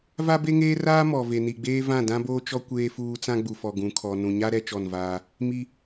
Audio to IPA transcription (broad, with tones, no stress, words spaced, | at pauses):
va˦be˦ŋeː˦raː˦ mɔ˨ ve˨ni˨ɡ͡beː˦ vã˦˨dã˦boː˦t͡ʃɔ˦ kʷeː˦fuː˦ t͡sã˦ɡ͡bu˨fɔ˨ ɡũ˨kʰɔ˨ nũ˨ɲa˦ ɾɛ˦t͡ʃɔ˦˨nvaː˦ | mi˦